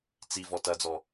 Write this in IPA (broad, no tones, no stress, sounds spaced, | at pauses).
t͡s i v ɔ t ɐ d͡z ɔ